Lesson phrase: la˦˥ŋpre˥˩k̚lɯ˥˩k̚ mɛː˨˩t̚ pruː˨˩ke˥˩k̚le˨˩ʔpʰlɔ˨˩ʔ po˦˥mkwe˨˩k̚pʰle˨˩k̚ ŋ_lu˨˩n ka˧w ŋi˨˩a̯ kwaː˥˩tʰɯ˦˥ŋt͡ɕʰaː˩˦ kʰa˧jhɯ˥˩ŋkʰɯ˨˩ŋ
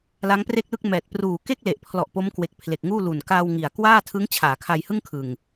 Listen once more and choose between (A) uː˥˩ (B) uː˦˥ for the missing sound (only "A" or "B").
A